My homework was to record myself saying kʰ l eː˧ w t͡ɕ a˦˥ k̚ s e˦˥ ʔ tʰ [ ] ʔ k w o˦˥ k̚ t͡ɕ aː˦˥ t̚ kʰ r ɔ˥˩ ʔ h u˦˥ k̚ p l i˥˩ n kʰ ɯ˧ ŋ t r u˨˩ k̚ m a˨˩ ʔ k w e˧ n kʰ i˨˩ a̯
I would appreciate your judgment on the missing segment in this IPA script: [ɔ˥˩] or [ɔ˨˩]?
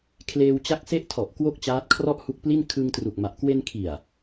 ɔ˨˩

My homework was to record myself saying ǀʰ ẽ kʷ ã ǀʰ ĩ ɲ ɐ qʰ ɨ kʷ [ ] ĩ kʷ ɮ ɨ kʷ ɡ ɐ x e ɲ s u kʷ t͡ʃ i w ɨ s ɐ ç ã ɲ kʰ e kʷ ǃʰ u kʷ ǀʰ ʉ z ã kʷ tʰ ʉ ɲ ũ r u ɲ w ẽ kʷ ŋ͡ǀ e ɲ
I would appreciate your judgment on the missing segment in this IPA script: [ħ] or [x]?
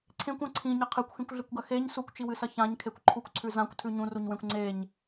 x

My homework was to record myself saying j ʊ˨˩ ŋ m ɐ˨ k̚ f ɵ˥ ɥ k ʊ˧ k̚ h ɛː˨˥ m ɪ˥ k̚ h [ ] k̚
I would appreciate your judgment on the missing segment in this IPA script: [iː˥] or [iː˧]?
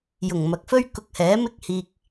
iː˧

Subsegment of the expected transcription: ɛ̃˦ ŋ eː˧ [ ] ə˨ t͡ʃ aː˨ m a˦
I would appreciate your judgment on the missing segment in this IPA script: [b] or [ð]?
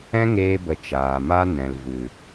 b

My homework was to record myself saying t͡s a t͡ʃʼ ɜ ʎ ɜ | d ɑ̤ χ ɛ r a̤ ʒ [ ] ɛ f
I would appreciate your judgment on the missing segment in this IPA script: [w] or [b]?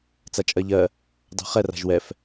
w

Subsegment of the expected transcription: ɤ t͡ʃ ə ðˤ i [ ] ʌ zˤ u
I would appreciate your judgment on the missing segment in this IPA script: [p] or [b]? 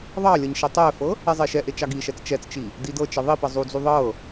p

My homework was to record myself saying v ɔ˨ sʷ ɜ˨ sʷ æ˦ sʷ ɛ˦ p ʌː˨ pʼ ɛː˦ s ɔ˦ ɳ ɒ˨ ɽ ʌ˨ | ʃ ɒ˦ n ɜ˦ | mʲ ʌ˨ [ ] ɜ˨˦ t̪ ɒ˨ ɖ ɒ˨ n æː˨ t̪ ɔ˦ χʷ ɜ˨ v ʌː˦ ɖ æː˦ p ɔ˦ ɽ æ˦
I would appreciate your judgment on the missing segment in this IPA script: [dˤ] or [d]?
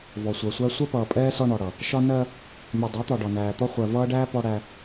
dˤ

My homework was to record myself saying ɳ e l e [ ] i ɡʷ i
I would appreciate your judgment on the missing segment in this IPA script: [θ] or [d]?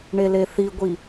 θ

